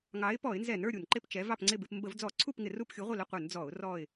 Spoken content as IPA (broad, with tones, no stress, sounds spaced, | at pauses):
ŋ ɑ˨˥ ɪ̯ p ɔ˧˩˧ ɪ̯ n z ɛ˧˩˧ n ə˞˥˨ ɾʲ u˧˩˧ n ǃ ɪ˥˨ p t͡ʃ ɛ˨˥ v ɑ˥˨ p ŋ͡ǀ ɪ˥˨ b ɪ˧˩˧ p m b ə˧˩˧ v d͡z ɔ˧˩˧ ǀʰ u˥˨ p ŋ ɪ˧˩˧ r u˥˨ p xʲ u˨˥ ʁʷ ɪ˥˨ l ə˥˨ qʷ ə˞˧˩˧ n d͡z ɔ˧˩˧ ʊ̯ r ɔ˥˨ ɪ̯